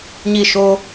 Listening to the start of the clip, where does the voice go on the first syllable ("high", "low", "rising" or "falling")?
falling